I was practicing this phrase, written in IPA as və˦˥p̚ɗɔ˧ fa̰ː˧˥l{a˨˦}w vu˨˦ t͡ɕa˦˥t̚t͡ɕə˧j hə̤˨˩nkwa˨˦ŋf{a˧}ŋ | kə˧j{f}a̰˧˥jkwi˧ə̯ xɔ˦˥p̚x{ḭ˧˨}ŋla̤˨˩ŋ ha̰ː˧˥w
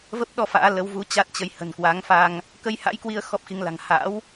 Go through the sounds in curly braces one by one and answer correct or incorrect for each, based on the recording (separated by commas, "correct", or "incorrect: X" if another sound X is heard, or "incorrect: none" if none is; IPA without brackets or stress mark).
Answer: incorrect: ə˨˦, correct, incorrect: h, incorrect: i˨˦